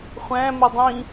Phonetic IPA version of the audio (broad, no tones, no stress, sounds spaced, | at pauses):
χʷ æ̃ m ʉ dˤ ĩ